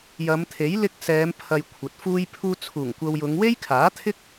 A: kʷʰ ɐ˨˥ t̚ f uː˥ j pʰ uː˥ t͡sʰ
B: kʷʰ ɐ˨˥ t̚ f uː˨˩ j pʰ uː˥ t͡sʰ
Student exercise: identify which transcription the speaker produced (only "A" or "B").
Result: A